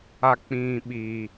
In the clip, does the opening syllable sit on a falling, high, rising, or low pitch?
low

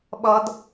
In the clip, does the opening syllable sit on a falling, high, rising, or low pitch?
high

